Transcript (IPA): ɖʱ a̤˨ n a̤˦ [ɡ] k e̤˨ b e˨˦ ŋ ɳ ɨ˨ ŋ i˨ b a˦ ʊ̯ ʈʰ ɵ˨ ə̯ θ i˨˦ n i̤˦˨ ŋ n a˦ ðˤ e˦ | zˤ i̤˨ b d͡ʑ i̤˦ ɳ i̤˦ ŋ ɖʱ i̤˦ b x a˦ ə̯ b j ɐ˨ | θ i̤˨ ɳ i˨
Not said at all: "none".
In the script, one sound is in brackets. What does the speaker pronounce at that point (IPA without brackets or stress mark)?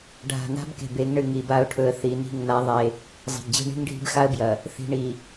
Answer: b